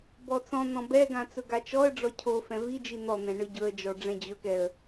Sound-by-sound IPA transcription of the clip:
b ɔ t͡s ɔ̃ n̪ ɔ̃ b ɛ ɡ ã t͡s ɵ ɡ a t͡ʃ ɔ ə̯ ɖ͡ʐ ɔ cʰ o f ɛ̃ v i d͡ʒ i n̪ ɔ n̪ ɛ̃ ɳ ɯ ɟ ɵ ə̯ d͡ʒ ɔ ɖ͡ʐ ɛ̃ d͡ʑ ɵ k ɛ ə̯

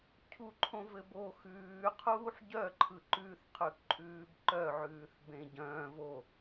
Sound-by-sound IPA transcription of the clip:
cʰ u ǃʰ õ v ɘ b o x ʉː qʰ uː ħ ɟ œ ǃʰ ɯ ǃ ʉ θ qʰ ʉ k ǃʼ ʉː b ǃ œ ʕ ʉː θ b ẽ ɟ œ̃ː v o

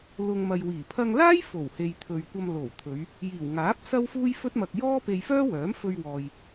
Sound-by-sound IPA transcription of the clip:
l ʊ˨ ŋ m ɐ˨ j w iː˨˩ pʰ ɐ˧ ŋ l aː˥ j f o˨˩ w h e˨ j t̪ʰ ɵ˨ ɥ kʷ ɐ˧ m l o˨˩ w t̪ʰ ɵ˨˧ ɥ | j iː˨˩ w ŋ aː˨˥ p̚ s ɐ˥ w f uː˥ j f ɵ˥ t̚ m ɐ˧ k̚ j ɔː˥ p e˧ j f œː˥ w œː˨˥ m f ɵ˧ ɥ w ɔː˨ j

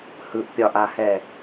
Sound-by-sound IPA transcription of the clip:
h ɯ ʔ pʲ ɒ ʔ a h ɛ

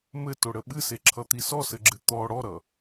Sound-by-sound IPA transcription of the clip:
m ɘ t o ɽ ə ɓ ɨ s e ǁʰ ʌ t̪ i s ɔ s ɘ ɡ͡ǁ ɨ t̪ ɔ ɽ ɔ ɾ ʌ

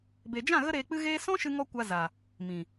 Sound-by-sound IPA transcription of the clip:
b e˨ d͡ʒ ã˦˨ ɣ ə˦ ɾ eː˧ k͡p ɨ˦ ɣ eː˦ s ɔ̃˦ ʃ ɨ˧ ŋ ɔ˧ kʷ a˧ z a˨ | m ĩ˨

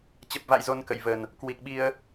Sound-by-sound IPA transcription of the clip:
t͡ɕ ə˨˩ p̚ v a̰˧˨ j z o˧ n k ə̰˧˨ j v ə˨˩ n | k w i˨˩ k̚ ɓ i˧ ə̯

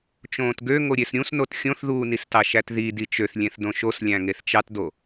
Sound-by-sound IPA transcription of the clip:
t͡ʃ õː t ɡ ø ŋ o ɾʲ e s ɾʲ ũ s n o t xʲ õ θ ð uː n i s t ɑ ʃ æ t ð i d i t͡ʃ ø θ lʲ ẽ θ d õ ʃ o s lʲ æ̃ ŋ e θ t͡ʃ ɑ t d o

